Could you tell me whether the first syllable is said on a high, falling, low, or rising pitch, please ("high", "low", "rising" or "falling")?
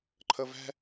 low